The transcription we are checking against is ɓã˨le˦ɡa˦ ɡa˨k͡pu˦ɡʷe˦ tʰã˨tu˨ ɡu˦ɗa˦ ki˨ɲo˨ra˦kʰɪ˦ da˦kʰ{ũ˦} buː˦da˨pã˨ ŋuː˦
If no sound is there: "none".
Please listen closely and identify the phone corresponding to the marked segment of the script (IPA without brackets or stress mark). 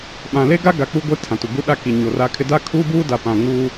u˦